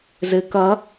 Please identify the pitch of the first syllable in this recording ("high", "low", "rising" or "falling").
low